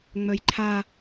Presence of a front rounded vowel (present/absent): present